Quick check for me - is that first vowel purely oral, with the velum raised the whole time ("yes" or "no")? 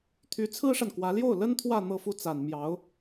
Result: yes